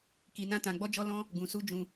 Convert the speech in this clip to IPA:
k i˧ n ã˦ t ã˧ ɡ͡b ɔ˦ d͡ʒ ɔ˦ l ɔ̃˦ | ɡ ũ˧ s u˦ d͡ʒ ũ˧

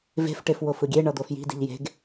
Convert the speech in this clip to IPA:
v e̤ f ʈ e f w o f ɯ ɡʲ e ɳ ʌ d̪ o f j i̤ d i̤ ʎ j e̤ ɡ

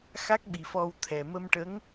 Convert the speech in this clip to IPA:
x a˦˥ k̚ ɓ i˨˩ f ɔ˧ w t̪ʰ ɛ˨˩ m ə˧ m ʈ ə˧˥ ŋ

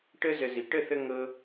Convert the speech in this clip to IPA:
ʈ ə˦ z ə˧ z i˨ ʈ ə˦˨ θ ə˧ ŋ ɤ˧

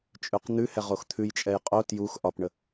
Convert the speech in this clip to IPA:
t͡ʃʼ ʉ q n̪ ʉ h ɛ ʁ o x t̪ʰ ʉ j t͡ʃʼ ɛ j qʼ o t j u x ʔ ɒ p ɳ ə

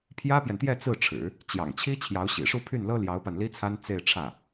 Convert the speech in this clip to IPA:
pʰ j ä˥ p j ɛ˨ n t̪ j ɛ˥˧ t͡s ɹ̩˥˩ ʈ͡ʂʰ ɻ̩˨˩˦ | t͡ɕ j ɑ̰˨˩ ŋ t͡ɕʰ i˥ t͡ɕʰ j ɑ˧˥ ʊ̯ ɕ ḭ˨˩ ʂ u˥˧ pʰ y˥˩ n l ɤ˥ l j ɑ˧˥ ʊ̯ p a˧ n l i˥ t͡sʰ a˥ n t͡s e˥˧ ɪ̯ ʈ͡ʂʰ ä˥˩

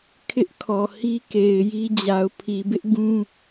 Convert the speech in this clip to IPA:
kʰ ɪ˦ ʔ kʰ ɔ˨ h i˦ k e˨ ɪ̯ j i˦ d͡ʑ a˨ ʊ̯ pʰ i˨ b ɪ˦ ʔ ɡ ũ˦

